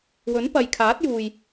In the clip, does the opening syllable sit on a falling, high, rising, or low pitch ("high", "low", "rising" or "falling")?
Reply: rising